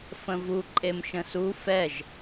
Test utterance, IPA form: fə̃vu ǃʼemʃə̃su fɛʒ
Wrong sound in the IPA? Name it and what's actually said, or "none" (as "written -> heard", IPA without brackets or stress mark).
none